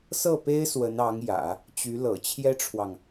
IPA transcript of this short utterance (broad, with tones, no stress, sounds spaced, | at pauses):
s ɤ˥˩ p e˥ ɪ̯ s w ə˧˥ n ɑ˧˥ ŋ j ä̰˨˩˦ | t͡ɕ y˧˥ l ɤ̰˨˩ t͡ɕʰ j ɛ˥ ʈ͡ʂʰ w ɑ˨ ŋ